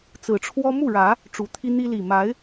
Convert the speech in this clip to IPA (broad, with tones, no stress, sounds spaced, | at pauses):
t͡s ɹ̩˨˩ ʈ͡ʂʰ w ɔ˦ m u˥˨ ɻ ä˨˦ | ʈ͡ʂ u˨˩ t̪ʰ i˦ n̪ i˦ l i˨˩ m a˨˦ ɪ̯